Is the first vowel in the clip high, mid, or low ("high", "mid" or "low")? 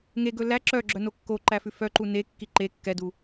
mid